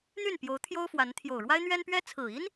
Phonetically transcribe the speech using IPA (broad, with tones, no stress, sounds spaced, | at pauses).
n̪ y˥˩ n p j o˧˥ ʊ̯ t̪ʰ j o˥ ʊ̯ f w a˧˥ n t̪ʰ j o˨˩ ʊ̯ ɻ w a˥ ɪ̯ n̪ ɥ ɛ˥ n p ɥ ɛ˥ t͡sʰ ɹ̩˨˩ i˥ n